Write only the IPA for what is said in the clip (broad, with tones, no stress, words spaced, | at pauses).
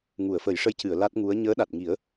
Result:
ŋu˨˩˨ə̯fə˨˩˦jʂə˧˥jcɨ˨˩˨ə̯ la˦˥t̚ŋu˧˥ə̯ ɲəː˧˥ɗa˨˩t̚ŋi˨˩˦ə̯